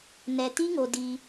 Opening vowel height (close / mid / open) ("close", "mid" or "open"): mid